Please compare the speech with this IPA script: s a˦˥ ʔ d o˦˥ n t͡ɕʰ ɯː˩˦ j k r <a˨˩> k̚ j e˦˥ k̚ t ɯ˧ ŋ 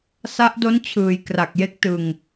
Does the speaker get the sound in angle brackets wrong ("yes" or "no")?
no